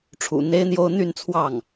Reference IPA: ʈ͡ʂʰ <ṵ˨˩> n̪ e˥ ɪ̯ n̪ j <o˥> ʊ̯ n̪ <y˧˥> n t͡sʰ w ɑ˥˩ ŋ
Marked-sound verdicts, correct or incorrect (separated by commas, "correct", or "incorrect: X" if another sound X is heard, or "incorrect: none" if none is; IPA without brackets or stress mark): correct, correct, incorrect: y˥˧